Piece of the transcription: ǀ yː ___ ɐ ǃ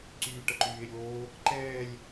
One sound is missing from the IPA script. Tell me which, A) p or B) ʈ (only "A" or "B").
B